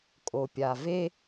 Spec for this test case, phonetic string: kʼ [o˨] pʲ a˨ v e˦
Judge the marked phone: correct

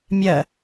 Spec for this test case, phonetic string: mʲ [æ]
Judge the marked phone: incorrect: ɜ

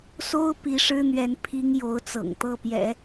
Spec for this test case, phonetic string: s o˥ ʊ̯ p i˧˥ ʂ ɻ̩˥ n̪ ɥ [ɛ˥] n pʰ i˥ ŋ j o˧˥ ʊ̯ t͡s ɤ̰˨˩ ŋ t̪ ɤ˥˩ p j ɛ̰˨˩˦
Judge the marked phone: incorrect: ɛ˧˥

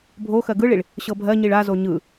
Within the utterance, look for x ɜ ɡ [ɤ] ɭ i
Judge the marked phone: incorrect: ɯ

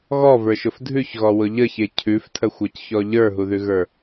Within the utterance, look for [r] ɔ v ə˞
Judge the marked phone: incorrect: ɣ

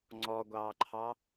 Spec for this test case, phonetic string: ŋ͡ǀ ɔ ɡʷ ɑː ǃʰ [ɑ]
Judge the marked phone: correct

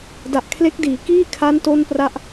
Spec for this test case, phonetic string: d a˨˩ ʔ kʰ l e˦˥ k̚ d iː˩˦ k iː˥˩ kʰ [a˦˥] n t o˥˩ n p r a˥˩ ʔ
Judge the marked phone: correct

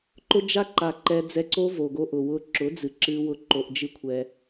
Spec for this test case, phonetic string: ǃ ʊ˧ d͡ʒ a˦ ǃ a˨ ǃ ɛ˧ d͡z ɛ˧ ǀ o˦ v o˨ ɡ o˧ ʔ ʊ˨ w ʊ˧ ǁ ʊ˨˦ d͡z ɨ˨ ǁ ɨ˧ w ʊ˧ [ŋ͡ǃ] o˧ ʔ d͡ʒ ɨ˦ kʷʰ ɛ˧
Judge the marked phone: incorrect: ǃ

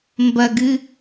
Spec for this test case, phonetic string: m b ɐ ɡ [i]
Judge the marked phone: incorrect: ɨ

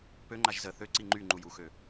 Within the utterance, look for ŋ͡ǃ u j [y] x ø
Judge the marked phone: incorrect: u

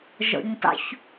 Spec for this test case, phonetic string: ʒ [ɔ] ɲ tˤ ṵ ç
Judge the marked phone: incorrect: ɔ̰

